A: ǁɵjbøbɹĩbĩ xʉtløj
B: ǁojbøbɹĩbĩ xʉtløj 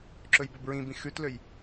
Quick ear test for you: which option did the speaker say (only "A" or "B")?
A